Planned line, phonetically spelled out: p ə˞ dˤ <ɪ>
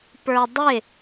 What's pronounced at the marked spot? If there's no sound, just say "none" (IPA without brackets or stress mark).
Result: ɪ